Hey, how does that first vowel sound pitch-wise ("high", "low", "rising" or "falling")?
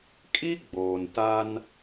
high